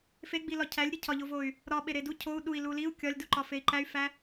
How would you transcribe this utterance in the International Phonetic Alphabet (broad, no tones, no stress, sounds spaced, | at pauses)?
f e ɡ͡b i l ɒ cʰ æ lʲ ɾʲ e cʰ ɒ ʎ o v o y̯ | ɾ ɒ ɓ e ɾ e d u cʰ o u̯ ɗ u i̯ l u l i u̯ kʲ ɒ lʲ d u ǃ ɒ f e i̯ ǃ æ y̯ f æ